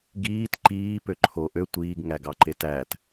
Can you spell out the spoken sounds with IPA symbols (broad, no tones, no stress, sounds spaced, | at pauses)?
ɡ iː t ǃ iː p ø ǃʰ o ʔ ø tʷ iː ɡ ŋ æ ɡ ɑ ǃ e t æ t